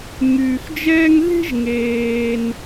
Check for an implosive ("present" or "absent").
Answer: absent